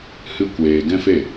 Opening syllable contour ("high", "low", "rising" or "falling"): high